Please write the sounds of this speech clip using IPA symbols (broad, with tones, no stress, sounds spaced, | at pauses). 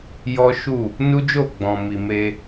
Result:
j ɔ˦ ʃ u˦˨ | n u˦ d͡ʒ o˦˨ ɡ͡b ɔ̃˨ m i˨ m e˧